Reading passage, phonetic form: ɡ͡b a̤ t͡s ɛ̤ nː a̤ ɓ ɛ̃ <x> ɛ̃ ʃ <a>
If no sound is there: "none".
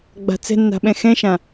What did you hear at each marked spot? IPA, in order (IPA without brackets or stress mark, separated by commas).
x, ã